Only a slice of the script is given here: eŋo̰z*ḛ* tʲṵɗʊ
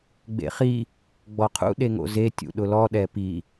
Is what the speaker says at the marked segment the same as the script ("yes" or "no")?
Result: no